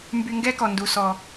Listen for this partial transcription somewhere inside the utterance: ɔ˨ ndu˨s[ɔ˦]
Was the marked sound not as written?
yes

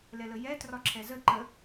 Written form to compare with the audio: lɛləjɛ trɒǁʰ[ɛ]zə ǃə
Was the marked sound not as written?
no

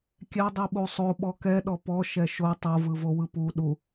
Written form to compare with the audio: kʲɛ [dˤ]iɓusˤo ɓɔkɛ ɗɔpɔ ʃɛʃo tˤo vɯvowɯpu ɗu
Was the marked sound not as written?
no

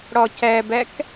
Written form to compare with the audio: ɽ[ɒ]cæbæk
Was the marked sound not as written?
no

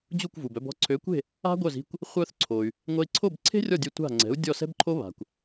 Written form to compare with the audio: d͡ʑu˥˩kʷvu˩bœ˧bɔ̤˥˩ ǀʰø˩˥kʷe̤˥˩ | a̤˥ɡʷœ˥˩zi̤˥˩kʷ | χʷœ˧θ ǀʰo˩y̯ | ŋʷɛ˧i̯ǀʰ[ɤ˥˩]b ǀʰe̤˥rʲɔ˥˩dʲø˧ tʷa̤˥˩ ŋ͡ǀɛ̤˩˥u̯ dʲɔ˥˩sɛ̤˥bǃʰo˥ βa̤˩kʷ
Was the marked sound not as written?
yes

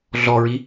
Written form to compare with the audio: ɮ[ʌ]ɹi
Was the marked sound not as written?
yes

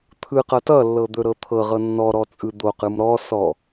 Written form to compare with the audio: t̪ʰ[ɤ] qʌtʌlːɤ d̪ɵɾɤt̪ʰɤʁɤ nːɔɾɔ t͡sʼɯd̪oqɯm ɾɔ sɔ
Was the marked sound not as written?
yes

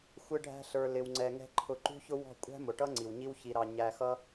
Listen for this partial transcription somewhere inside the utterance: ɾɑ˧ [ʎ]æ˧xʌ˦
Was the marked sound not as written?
yes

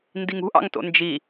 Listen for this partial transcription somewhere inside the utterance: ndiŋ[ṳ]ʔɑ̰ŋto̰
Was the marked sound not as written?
no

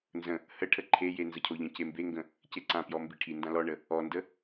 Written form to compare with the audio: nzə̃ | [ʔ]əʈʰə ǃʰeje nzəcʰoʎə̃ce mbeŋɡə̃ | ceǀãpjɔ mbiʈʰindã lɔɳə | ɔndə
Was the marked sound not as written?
yes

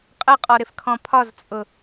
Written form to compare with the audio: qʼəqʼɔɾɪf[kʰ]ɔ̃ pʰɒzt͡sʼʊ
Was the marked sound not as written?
no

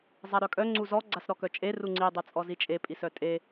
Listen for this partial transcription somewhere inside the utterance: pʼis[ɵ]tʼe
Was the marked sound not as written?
yes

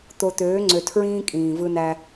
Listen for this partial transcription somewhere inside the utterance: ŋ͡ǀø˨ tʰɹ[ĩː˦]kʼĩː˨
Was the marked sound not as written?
no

